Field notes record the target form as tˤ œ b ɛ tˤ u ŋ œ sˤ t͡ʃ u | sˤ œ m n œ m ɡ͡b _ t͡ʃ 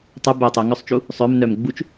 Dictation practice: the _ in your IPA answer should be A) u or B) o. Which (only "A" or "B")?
A